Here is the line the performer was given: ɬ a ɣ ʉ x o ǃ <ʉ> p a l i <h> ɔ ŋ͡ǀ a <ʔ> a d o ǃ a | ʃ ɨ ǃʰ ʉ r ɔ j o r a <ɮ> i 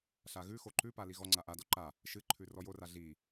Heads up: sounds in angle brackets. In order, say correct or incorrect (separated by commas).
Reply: correct, incorrect, correct, correct